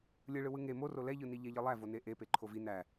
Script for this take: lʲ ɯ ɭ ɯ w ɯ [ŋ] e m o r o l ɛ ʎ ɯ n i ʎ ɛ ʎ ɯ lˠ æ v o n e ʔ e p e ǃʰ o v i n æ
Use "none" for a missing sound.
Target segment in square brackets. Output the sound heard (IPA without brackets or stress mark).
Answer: ŋ